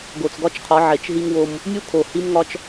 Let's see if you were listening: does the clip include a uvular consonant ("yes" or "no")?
yes